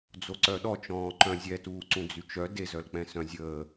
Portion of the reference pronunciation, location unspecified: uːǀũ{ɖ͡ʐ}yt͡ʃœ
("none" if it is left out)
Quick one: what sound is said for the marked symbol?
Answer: d͡z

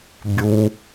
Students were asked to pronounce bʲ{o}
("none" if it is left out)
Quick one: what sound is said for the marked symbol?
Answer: u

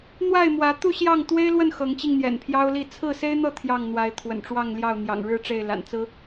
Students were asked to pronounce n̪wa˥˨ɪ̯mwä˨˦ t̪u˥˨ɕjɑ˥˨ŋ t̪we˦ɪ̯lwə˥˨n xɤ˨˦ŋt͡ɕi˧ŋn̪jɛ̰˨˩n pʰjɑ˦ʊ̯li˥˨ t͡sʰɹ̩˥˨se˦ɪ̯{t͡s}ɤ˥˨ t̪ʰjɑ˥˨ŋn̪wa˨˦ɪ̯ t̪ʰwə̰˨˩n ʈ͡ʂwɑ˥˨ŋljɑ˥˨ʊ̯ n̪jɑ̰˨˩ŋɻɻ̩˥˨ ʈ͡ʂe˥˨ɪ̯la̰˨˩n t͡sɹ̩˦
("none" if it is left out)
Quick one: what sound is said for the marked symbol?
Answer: n̪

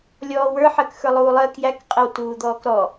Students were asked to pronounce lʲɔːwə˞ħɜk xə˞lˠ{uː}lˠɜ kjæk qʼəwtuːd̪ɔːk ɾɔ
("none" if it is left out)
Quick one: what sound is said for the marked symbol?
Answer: uː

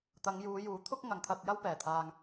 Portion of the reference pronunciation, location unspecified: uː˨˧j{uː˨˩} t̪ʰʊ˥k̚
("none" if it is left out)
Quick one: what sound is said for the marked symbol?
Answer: uː˨˥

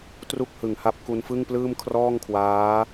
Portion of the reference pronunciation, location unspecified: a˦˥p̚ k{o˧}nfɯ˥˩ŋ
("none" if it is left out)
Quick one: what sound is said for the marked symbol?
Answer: u˧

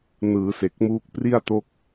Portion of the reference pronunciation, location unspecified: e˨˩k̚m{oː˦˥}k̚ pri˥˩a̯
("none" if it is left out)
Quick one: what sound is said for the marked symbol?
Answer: uː˦˥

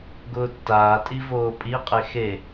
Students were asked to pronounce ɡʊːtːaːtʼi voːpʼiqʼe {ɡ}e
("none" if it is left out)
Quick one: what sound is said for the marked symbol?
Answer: x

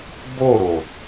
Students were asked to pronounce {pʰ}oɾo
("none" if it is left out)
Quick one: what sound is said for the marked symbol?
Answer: b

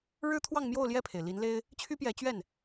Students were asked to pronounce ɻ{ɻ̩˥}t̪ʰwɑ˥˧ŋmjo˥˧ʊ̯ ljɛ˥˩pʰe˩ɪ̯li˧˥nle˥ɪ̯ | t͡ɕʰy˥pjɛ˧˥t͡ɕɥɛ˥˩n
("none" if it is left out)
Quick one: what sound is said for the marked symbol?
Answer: ɻ̩˥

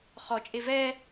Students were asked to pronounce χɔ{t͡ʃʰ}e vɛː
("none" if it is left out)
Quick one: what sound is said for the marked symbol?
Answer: t͡ʃʼ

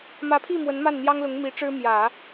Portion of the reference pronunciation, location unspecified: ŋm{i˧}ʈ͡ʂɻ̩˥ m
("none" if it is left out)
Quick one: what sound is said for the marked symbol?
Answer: i˧˥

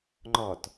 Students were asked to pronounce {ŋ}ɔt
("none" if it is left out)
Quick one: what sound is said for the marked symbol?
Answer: ŋ͡ǃ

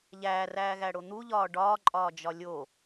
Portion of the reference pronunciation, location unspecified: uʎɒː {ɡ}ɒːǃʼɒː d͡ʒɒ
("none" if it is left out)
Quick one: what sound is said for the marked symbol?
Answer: ɖ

